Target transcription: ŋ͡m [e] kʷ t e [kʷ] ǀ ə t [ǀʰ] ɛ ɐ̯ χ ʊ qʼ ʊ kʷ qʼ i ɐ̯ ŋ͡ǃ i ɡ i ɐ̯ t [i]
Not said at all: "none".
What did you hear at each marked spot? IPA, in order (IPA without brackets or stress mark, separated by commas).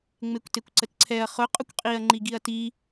e, kʷ, ǀʰ, i